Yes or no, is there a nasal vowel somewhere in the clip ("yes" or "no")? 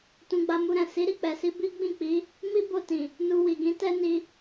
yes